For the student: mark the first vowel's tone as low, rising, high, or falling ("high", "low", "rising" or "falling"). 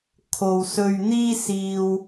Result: low